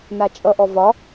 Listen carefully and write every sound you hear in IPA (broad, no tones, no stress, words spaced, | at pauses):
nat͡ʃʼʌʔɔ vɒ